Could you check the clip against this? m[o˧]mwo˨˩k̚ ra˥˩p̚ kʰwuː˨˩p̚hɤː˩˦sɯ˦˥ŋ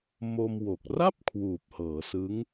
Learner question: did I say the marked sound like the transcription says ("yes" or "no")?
yes